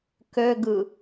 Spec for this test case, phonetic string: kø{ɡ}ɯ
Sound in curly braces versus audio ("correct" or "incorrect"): correct